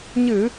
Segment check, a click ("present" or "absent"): absent